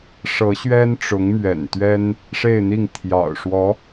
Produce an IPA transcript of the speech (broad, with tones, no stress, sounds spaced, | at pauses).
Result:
ʂ ɤ˧˥ ɕ ɥ ɛ˥ n ʈ͡ʂ ʊ˧˥ ŋ m ɥ ɛ̰˨˩ n t̪ ɥ ɛ˥ n | ʂ e˥˧ ɪ̯ n̪ i˥˩ ŋ t̪ʰ j ɑ̰˨˩ ʊ̯ ʂ w ɔ˧˥